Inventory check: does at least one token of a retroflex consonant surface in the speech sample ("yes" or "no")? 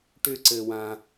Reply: yes